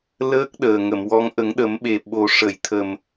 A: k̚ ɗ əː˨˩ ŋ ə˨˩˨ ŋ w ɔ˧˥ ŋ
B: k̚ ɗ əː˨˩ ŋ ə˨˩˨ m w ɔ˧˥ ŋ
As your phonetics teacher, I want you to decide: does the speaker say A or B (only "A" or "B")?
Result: B